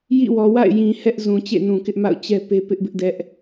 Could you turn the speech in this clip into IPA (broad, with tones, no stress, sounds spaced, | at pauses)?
j ḭ˦˨ w ɔ˨ w a̰˦˨ ɪ̯ j ĩ˨ h ɛ˦ ʔ z ũ˨ t͡ɕ ḛ˦˨ n ũ˨ k ɪ˦ ʔ m a̰˦˨ ʊ̯ t͡ɕ ɛ˦ p e˦ p ɪ˦ ʔ b ɪ˦ ʔ d ɛ˦ ʔ